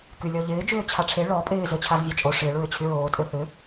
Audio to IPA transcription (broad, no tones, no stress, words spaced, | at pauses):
kylʲɔʎɪː d͡ʒʏːt͡ɕʰaʈ͡ʂʰe ɭɔ pʼɪː zøt͡ɕʰazvʲat͡ʃʼo ʂɪːɭ ɹʏt͡ɕʰyɹoː tʼøθʏ